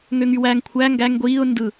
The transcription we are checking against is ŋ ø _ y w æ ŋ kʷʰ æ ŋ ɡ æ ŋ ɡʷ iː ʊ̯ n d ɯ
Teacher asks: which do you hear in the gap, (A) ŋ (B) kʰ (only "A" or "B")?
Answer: A